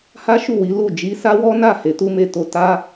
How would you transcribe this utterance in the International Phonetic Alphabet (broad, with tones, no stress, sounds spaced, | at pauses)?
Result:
h a˦ ʃ u˦˨ w i˨˦ l u˦˨ d͡ʒ i˨˦ s a˦ w ɔ˦ n a˦˨ h e˨˦ t u˦ m e˦ t o˦ t a˦